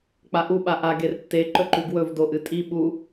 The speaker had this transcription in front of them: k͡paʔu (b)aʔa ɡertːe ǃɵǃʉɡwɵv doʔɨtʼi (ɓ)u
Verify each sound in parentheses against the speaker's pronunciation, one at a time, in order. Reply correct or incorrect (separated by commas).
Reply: incorrect, correct